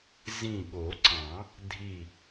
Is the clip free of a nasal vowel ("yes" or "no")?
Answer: no